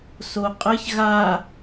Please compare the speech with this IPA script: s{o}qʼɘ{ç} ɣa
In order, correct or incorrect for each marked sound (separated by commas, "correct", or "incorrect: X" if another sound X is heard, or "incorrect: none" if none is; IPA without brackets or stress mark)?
correct, correct